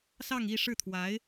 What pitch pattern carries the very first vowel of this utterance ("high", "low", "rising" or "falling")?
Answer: falling